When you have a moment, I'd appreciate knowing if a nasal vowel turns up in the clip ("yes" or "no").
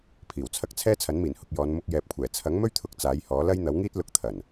no